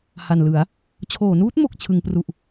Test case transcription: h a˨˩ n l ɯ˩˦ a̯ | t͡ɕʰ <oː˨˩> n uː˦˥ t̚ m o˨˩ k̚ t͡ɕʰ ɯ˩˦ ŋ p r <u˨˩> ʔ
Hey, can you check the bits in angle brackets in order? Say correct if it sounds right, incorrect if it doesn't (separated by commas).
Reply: incorrect, correct